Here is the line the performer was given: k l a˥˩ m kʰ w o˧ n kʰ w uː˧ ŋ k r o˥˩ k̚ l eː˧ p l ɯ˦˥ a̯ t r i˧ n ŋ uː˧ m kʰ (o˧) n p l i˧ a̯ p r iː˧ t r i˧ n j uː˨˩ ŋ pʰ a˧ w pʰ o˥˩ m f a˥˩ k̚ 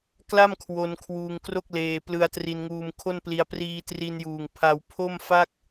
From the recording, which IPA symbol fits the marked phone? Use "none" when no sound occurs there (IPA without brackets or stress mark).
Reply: o˥˩